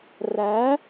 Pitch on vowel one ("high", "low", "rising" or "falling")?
rising